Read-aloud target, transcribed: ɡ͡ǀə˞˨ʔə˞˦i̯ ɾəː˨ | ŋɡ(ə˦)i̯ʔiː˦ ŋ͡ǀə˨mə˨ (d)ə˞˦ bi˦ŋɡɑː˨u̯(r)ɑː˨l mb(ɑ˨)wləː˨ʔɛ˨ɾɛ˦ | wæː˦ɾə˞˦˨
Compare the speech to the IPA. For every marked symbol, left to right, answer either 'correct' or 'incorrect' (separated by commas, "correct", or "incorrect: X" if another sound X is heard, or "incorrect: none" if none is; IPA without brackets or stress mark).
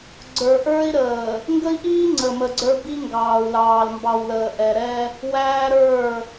correct, incorrect: ɡ͡ǀ, incorrect: l, correct